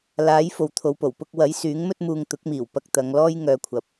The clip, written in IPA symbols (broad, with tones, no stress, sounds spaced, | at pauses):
l aː˨˥ j f o˨ w t̪ʰ o˨ w p o˨˩ w p ʊ˧ k̚ w ɐ˨˥ j s yː˨˥ ŋ m ɵ˥ t̚ m uː˧ ŋ t̪ ʊ˨˥ k̚ m iː˨˩ w p ɐ˧ k̚ t̪ ɐ˨˧ ŋ l ɔː˥ j ŋ œː˧ kʷʰ ɐ˨˥ p̚